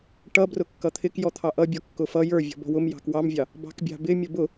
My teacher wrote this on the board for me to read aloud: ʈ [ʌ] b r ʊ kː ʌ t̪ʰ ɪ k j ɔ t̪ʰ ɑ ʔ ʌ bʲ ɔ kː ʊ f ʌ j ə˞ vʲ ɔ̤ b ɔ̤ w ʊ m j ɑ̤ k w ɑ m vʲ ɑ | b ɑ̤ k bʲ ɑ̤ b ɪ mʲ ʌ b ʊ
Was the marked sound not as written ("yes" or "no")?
no